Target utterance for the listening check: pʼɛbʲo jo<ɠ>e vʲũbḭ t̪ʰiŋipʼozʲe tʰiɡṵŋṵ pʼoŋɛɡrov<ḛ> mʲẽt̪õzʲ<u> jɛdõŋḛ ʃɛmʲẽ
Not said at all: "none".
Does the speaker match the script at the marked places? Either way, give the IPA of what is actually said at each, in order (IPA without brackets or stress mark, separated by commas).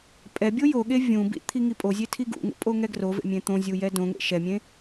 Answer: ɠ, ḛ, u